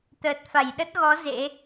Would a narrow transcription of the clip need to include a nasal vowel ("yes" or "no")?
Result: no